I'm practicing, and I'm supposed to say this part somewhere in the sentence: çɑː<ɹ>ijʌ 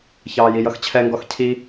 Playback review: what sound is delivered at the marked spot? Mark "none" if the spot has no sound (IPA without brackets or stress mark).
j